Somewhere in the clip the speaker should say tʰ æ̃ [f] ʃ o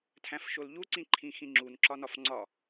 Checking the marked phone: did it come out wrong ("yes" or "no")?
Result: no